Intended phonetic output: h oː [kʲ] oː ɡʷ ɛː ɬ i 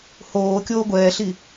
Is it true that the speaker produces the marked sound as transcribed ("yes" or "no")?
yes